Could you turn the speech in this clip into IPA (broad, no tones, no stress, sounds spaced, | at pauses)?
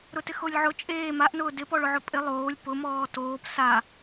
ɾ ʊ t ɪ x o lʲ ʕ ʊ t͡ʃʼ eː m a ʔ n ʊː d ɪ p ɔ ɭ ʊ ʕ ʊ pʼ ɪ lˠ oː lʲ p ʊ m ɔː t oː p s a